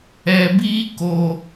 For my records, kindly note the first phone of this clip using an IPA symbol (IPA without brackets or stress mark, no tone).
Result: ɛ